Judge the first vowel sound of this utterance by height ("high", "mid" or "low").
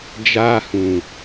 low